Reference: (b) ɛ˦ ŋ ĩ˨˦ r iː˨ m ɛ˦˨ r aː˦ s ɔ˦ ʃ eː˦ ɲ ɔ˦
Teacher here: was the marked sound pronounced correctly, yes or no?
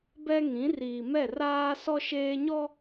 yes